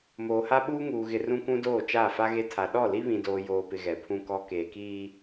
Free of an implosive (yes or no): no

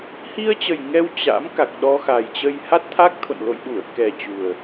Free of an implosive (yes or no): no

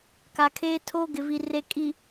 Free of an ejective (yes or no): no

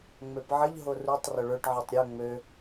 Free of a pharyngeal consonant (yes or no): no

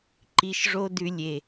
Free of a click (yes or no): no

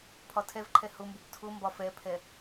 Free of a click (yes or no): no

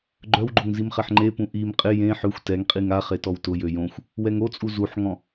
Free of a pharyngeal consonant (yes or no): no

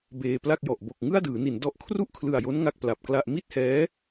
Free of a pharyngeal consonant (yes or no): yes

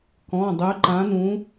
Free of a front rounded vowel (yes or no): no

